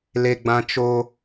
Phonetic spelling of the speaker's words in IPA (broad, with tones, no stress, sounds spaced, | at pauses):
l e˦ ɡ͡b ã˦ t͡ʃ o˦